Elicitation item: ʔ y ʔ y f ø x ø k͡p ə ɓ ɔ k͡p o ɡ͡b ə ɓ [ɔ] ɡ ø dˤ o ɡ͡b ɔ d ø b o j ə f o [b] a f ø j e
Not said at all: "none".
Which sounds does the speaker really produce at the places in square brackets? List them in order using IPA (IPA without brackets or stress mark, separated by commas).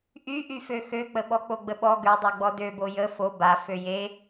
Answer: ɔ, b